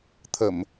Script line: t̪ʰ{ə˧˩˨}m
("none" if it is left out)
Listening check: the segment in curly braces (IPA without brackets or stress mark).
ə˧˩˨